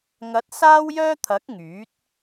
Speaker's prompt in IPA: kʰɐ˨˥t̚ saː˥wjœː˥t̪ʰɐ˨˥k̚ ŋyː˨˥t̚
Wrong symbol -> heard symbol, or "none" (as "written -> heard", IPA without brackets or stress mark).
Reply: kʰ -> ŋ